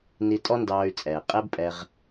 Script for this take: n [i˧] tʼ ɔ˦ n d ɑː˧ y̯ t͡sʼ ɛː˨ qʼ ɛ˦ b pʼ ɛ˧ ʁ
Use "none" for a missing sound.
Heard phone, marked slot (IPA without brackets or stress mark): i˧